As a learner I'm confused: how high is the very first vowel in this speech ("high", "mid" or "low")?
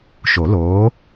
mid